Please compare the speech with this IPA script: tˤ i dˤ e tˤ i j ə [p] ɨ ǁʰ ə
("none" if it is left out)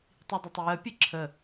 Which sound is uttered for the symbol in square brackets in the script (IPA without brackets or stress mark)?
pʲ